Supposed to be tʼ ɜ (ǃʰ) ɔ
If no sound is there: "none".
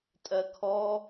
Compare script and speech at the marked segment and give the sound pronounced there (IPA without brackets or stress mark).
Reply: kʰ